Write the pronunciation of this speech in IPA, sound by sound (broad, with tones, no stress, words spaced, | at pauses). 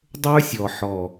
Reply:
dˤə˞˦sʲɔ˨ ħɔ˨